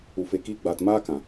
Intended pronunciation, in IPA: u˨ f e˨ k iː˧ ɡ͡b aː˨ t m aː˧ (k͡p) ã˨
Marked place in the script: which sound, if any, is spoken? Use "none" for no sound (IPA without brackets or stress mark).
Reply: k